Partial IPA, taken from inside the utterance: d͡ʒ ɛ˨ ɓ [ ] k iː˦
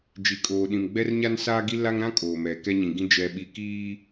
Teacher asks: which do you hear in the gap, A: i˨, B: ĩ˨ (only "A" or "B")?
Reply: A